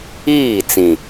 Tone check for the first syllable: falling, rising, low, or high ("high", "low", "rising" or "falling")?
falling